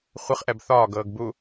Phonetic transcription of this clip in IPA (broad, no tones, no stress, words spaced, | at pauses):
χʷɨχʔɛb θɒːɡɤːɡ bu